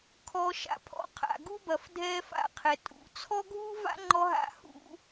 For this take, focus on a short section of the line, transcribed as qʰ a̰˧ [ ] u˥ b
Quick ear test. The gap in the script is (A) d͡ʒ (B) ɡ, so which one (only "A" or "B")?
B